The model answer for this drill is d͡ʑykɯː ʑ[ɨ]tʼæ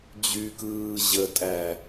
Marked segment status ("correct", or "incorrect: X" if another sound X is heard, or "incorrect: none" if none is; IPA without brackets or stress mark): incorrect: ə